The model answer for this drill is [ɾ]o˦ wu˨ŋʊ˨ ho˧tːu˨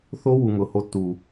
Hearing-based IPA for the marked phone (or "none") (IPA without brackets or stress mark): θ